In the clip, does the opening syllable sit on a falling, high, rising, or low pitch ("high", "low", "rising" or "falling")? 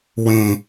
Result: low